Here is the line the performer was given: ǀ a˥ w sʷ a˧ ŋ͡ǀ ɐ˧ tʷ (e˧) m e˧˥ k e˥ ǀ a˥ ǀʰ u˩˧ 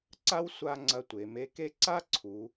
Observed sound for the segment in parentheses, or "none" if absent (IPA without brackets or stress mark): e˩˧